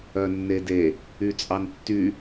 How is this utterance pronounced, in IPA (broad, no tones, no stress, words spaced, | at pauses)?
œnːede | yt͡sʼɑntːy